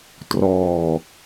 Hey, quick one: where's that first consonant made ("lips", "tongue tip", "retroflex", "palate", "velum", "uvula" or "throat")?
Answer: tongue tip